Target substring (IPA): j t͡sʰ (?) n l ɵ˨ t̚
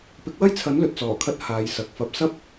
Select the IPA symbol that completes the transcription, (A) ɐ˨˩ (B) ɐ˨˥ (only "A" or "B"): B